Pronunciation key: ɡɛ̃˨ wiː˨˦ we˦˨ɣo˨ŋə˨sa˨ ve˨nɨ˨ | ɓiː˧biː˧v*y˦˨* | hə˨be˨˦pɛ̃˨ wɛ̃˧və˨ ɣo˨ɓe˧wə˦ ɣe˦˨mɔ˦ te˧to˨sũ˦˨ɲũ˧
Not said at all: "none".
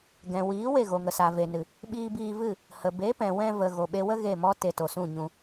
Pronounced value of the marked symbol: ɨ˦˨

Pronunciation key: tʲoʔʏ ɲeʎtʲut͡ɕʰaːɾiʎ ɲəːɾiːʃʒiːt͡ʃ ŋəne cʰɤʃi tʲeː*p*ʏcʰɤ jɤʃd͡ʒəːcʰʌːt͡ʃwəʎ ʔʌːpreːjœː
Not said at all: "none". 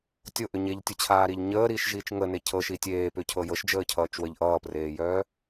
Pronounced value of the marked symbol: p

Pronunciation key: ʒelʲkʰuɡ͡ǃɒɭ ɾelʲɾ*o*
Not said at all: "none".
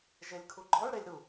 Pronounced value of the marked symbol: u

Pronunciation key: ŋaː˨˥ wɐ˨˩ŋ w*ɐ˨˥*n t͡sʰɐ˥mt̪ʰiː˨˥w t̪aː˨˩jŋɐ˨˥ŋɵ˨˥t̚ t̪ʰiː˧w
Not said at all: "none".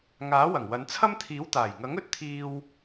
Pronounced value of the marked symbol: ɐ˨˧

